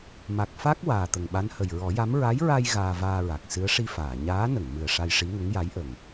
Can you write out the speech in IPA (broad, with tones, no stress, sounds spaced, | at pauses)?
m a˨˩ k̚ f a˦˥ k̚ w aː˨˩ t̪ ə˨˩ ŋ ɓ a˧˥ n h ə˨˩ j ɹ ɔ˨˩˦ j a˧˥ m ɹ a˧˥ j ɹ a˧ j ɣ aː˧ v aː˧ ɹ a˨˩ k̚ s ɨ˧˥ ə̯ ʂ i˧ f aː˨˩˨ ɲ aː˧˥ n ə˨˩˨ ŋ m ɨ˨˩ ə̯ ʂ a˧ j ʂ i˧˥ ŋ ə˧˥ ŋ j a˧˥ j ʔ ə˨˩ ŋ